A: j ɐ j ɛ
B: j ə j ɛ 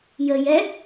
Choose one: B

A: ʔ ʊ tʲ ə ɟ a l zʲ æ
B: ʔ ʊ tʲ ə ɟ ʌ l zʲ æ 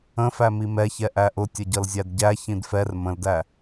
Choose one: B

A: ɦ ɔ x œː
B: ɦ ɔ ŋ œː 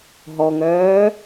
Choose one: B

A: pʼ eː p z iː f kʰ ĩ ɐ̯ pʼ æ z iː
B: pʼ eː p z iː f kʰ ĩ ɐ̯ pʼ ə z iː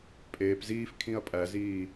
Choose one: A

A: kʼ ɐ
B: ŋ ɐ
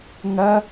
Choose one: B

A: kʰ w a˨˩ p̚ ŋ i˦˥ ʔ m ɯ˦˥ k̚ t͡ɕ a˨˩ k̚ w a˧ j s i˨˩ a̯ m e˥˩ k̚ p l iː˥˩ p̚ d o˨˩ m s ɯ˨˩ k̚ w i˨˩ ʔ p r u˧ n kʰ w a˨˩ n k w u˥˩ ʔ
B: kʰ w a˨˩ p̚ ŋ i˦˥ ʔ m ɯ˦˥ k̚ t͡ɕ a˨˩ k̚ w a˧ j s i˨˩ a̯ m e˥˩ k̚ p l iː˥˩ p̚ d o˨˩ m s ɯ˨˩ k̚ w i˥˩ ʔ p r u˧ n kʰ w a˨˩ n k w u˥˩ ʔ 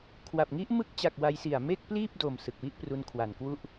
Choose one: B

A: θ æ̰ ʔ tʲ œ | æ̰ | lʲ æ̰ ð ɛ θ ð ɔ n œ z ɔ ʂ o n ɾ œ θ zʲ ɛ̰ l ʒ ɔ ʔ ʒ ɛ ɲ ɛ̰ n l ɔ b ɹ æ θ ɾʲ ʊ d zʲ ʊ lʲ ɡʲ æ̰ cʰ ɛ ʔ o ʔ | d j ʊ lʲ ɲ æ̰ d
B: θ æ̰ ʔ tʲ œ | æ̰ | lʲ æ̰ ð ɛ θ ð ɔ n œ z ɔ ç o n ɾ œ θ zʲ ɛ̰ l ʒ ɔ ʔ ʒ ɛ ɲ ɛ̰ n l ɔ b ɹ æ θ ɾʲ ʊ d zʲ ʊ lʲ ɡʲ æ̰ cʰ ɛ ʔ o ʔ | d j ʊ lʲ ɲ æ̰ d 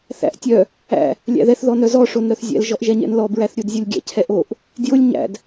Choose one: A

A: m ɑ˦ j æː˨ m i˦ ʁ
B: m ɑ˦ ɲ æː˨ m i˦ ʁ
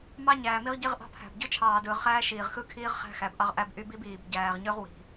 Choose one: B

